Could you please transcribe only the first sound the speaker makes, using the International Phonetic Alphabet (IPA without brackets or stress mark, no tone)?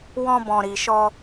w